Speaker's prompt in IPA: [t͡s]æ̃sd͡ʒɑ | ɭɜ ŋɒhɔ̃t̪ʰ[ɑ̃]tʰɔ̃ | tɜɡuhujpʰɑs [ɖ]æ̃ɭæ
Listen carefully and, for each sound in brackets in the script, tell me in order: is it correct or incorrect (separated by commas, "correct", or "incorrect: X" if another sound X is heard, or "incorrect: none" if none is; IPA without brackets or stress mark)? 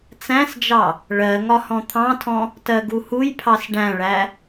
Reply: correct, correct, correct